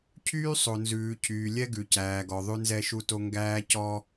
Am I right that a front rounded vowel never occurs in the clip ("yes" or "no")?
no